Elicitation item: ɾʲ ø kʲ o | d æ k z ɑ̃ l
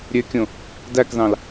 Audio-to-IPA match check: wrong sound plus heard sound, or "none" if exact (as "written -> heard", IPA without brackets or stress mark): o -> õ